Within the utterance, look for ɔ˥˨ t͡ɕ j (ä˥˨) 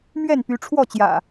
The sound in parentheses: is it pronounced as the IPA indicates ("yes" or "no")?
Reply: no